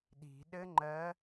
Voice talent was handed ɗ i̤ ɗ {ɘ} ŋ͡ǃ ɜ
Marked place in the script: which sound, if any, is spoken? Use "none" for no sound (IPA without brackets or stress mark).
ɘ